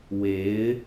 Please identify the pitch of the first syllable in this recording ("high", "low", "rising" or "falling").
rising